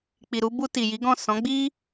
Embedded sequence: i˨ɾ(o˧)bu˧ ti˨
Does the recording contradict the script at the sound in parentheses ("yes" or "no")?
yes